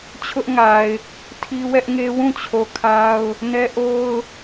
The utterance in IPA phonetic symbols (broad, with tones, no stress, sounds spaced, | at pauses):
t͡ɕʰ ʊ˦ ʔ ŋ a˨ ɪ̯ | tʰ i˦ w ɛ˦ ʔ ŋ e˦ w ũ˦˨ t͡ɕʰ o˨ kʰ a˦ ʊ̯ | n ɛ˦ ʔ o˦ ʊ̯